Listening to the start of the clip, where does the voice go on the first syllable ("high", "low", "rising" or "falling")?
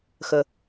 low